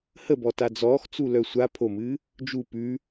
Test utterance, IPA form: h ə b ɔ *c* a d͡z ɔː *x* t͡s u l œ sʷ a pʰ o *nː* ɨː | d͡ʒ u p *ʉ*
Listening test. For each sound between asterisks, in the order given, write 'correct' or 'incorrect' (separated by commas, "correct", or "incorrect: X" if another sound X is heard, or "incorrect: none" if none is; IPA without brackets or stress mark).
incorrect: t, correct, incorrect: m, correct